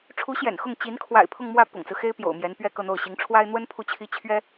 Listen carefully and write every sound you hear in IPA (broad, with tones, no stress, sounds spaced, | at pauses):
ʈ͡ʂʰ u˧˥ ɕ j ɛ̰˨˩ n x ʊ˥˩ ŋ t͡ɕ i˧˥ n kʰ w a̰˨˩ ɪ̯ pʰ ʊ˥˧ ŋ m w ä˥˩ p ʊ̰˨˩ ŋ t͡s ɹ̩˦ x e˥ ɪ̯ p j o̰˨˩ ʊ̯ m j ɛ˧˥ n p ɥ ɛ˥˧ k ɤ˥˧ n̪ o˥˩ ʊ̯ ɕ i˧˥ ŋ ʈ͡ʂʰ w a˥ ɪ̯ n̪ w ə˥ n pʰ u˥˩ t͡ɕʰ i˥ t͡ɕʰ ɥ ɛ˥